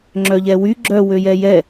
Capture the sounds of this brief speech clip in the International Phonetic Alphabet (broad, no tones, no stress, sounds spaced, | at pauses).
ŋ͡ǁ œ ʎ ɛ w y ɡ͡ǁ œ w ø j ɛ j ɛ